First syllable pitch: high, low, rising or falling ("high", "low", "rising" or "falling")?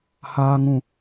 low